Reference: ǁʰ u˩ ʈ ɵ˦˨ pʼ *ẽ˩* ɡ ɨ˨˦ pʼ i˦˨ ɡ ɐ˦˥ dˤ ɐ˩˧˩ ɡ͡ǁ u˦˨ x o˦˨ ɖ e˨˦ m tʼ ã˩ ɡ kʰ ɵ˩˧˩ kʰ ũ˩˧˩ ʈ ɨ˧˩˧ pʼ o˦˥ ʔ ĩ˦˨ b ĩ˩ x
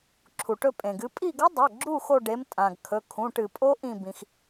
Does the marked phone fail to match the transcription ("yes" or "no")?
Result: no